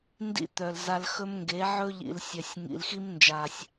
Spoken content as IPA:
n d ḭ˦ t̪ œ˨ l z a˧ l x ɵ˦ m ŋ ɡ e˨˦ ʕ ɵ˦ ʎ ḭ˨ l sʲ œ˨ sʲ ŋ ḭ˨ l x i˦ m n d͡ʒ a˨ sʲ

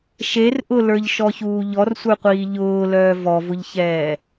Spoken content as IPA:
ʃ e r ʔ ʊ l ə˞ ʎ ʃ ɔ ç uː ʎ ɔ r sʷ ə˞ qʷ iː ʎ ʊː l œː v ɔ v ʊ ʎ ç ɛː

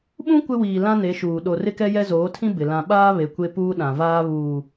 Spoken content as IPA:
ɓ ũ˦ kʷ ɪ˦ w iː˨ l ã˦ n e˨˦ ʃ uː˨ ɗ o˨ r ɪ˦ k ɛ˦ j ɛ˦ z oː˨˦ tʰ ĩ˦ b ɪ˨ l ã˦ ɓ aː˦ β e˨ kʷ e˦ p uː˦ ɗ ã˨ v aː˦ β uː˨

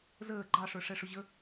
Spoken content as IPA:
z əː ɡ͡ǃ ɑ ʂ ə˞ ʂ ɛ ʂ ʊ ʑ ə

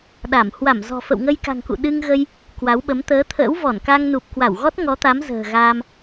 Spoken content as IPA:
ɗ a˧˩ m h w a˧˩ m z ɔ̤˨˩ f ə̰˧˨ w ŋ ə˧ j k a̤˨˩ ŋ k ṵ˧˨ ɗ ɨ˧ ŋ ɣ ə˧ j | k w a˨˦ w ɓ ə˨˦ m t̪ əː˨˦ t̪ʰ ə̰ː˧˥ w v ɔ˧˩ n k a˧ ŋ n u˨˩ p̚ k w a˧˩ w ɣ ɔ˦˥ t̚ ŋ ɔ˨˦ t̪ a˨˦ m z ə̤ː˨˩ ɣ a˧ m

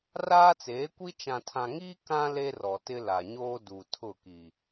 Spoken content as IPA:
r aː˦ t͡s eː˨˦ kʷ i˦ t͡ʃ ã˨ tʰ ã˨ ŋ iː˦ k ã˦ l e˦ r ɔ˨ t ɪ˦ l a˨ ɲ oː˦ d u˨ tʰ ʊ˦˨ k i˨

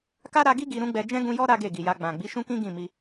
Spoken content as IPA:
k a˦ ɾ a˧ ɡ i˦ ɡ i˧ ɾ ũ˦ ɡ͡b ɛ˧ d͡ʒ ɛ̃˦ ɡ ũ˧ j ɔ˦ ɾ a˦ ɡ e˦˨ ɡ i˨ j a˧ ɡ͡b ã˨ ɡ͡b i˨˦ ʃ ũ˦ k ĩ˦ ɡ ĩ˦˨ m i˧

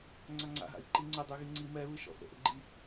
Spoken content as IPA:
ŋ͡ǀ a ŋ͡ǀ a̰ ɦ a̰ i̯ ǃ i ŋ͡ǀ ɪ dˤ y ɣ i ŋ͡ǀ i m ɛ β ɨ ʃ ɔ̰ θ ə̰ ʔ ə̰ ɡ͡ǃ i

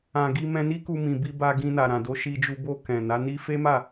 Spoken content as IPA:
ã˨ ɡ i˧ m ɛ̃˧ n i˦ k u˧ m ĩ˨ b i˧ b a˧ ɡ ĩ˧ n a˨ ɾ ã˨ d o˨˦ ʃ i˧ d͡ʒ u˧ b o˧ k ɛ̃˨ n a˨˦ n i˦ f e˦ m a˦˨

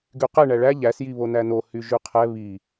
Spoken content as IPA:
ɡ y q ɛ ɳ æ ɭ æ ʎ æ s j i β o n æ n o h y ʒ y qʰ ɛ β i

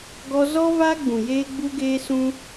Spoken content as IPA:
ɡ ɔ˧ z ɔ˦ v a˦ ɡ͡b ũ˨ j eː˦ ɡ͡b u˦ ɡ eː˦ s ũ˦

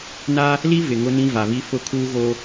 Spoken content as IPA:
n a˦ | l i˦ v ɪ˨ ŋ ʊ˦ n ĩ˦ v a˨ β i˦ f ʊ˦˨ kʰ uː˦ ɣ o˦

